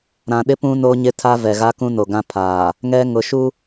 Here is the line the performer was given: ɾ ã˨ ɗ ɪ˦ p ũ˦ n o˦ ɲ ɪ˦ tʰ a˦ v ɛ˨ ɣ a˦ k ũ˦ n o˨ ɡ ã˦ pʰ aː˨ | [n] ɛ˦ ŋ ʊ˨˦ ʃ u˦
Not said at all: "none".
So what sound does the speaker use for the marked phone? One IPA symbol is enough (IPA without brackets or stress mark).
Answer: ŋ